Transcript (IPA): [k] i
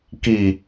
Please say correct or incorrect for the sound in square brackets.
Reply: correct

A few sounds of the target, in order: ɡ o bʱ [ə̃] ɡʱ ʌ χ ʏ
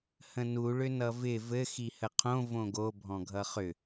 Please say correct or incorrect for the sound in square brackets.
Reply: incorrect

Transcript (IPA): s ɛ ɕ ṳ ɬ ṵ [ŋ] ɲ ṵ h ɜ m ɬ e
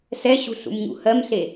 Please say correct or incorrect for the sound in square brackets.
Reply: incorrect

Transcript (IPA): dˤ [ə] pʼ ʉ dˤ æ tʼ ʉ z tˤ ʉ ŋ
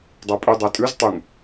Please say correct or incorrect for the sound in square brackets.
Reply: incorrect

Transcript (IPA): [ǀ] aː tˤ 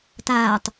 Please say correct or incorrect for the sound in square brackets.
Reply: incorrect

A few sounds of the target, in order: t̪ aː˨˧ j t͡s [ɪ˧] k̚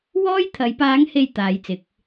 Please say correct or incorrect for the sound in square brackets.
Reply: incorrect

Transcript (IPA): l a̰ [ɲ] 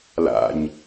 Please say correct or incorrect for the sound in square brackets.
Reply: correct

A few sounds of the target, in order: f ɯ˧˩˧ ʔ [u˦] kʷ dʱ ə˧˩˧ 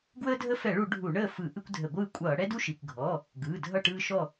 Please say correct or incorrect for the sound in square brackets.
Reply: incorrect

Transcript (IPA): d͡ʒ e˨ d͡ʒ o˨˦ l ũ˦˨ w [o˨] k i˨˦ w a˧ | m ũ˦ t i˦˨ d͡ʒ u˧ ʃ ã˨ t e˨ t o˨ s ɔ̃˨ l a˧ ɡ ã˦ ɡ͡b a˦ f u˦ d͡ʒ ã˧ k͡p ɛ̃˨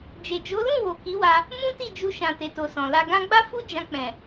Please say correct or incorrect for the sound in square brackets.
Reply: correct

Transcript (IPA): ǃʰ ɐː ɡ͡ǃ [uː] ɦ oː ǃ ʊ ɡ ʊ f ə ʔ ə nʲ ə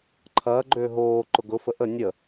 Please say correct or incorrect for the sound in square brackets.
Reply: incorrect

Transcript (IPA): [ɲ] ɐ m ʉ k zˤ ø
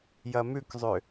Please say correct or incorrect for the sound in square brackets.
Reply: incorrect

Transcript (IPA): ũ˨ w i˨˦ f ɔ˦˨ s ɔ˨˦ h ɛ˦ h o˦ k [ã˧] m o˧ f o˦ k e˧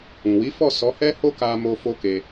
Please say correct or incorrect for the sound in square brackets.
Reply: incorrect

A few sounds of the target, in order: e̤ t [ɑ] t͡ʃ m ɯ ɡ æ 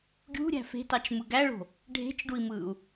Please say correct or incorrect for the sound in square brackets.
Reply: correct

